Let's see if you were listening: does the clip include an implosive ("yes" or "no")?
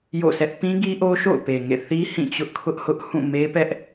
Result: no